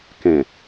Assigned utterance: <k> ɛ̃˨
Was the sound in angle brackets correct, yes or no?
yes